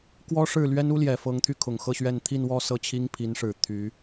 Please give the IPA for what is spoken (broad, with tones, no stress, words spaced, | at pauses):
kwɔ˥ʂɻ̩˥˩lɥɛ˥n u˥ljɛ˨˩fɤ˧˥ŋ t̪ʰy˥˩kʰʊ˨˩ŋxɤ˥˧ɕɥɛ˥˧n t̪ʰi˥˧nwɔ˥˧ sɤ˥˩t͡ɕʰi˥ŋpʰi˧˥nʂɻ̩˨˩ t̪ʰy˧˥